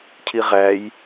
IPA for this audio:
cʰ i ʁ æ j

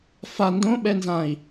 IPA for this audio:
f a n d õ ɓ ɛ n z ã i̯

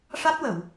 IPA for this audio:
ʂ a˦˥ t̚ w ə˨˩˨ w

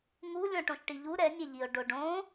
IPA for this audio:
ŋ u lʲ ɔ̃ ʈ õ ʃ ʈ i ʎ u ɾ ɛ nʲ e ʎ i o̯ ɖ o ɖ õ

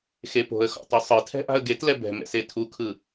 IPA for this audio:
x e p o̤ ə̯ x ɔ̰ tˤ o sˤ ɯ tʰ ɛ̤ ʔ a̤ ə̯ ɡ e t l ɛ b ɛ̤ m ɛ̰ s e tʰ u kʰ ɯ

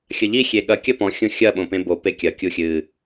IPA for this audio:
xʲ ɐ ʎ i xʲ e ɠ ɐ kʲ ɐ p ɔ̃ xʲ õ xʲ ɐ ɓ õ p ẽ b o p e kʲ ɐ kʲ u xʲ ɨ

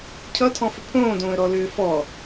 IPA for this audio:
cʰ ʌ tʰ ɔ̃ f ʏ pʰ õː d õː ə̯ ɾ ɔ l ʏː f ɔ

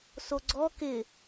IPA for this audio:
s o ɡ͡ǀ ɔ k ɪ

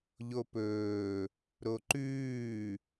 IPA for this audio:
ʎ o p ɵː | ɾ o ǃ ʉː

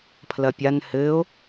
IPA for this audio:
pʰ l ɐ pʲ a n h ɘː o̯

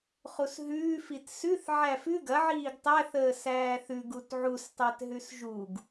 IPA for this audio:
χ u s ɦ ʉː f i t s ʉ θ ʕ æ f ʉ ɡ ɐ ʕ iː ɡ tˤ æ θ əː s æː θ ʉ ɡ u t ʕ u s tˤ æ t ɦ ʉ s ʒ u ɡ

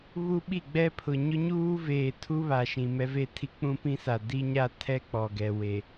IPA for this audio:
β u˦ ɓ i˦˨ ɡ͡b ɛ˦ pʰ ʊ˨ ɲ ʊ˦ ɲ uː˦ v eː˨ tʰ u˦ β a˨ ʃ ĩ˨ m ɛ˦ v e˦ tʰ i˦ k͡p ũ˦ p ĩ˦ s a˨ d i˦ ɲ a˦ tʰ ɛ˦ k͡p ɔ˨ ɡ ɛ˨ w e˨

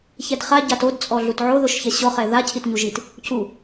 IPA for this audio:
ç ɛ d χ a ɟ a t o d t͡sʼ ɔ ɮ u t ʕ o ð o ʃ ç ɛ ɕ ɔ χ ɛ ð a cʰ i t ɲ u ʒ i t | c u

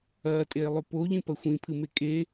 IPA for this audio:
ɐː tʼ eː lˠ ʉ p o ʎ ĩ p ɐ xʷ ĩ pʰ ɨ m e kʼ e

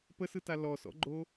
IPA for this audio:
p ə s ɯ t a l ɔ s ɔ̰ ɡ͡ǃ o

